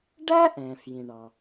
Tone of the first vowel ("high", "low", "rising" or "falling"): high